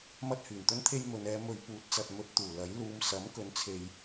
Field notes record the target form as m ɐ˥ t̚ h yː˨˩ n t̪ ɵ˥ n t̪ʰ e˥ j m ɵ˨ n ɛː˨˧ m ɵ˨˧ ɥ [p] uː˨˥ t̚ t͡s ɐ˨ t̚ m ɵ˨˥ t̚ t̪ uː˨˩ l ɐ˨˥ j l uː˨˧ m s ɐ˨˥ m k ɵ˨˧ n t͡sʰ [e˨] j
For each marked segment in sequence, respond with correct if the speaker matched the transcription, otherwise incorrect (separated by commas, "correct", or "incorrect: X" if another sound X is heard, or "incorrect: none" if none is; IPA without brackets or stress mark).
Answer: correct, correct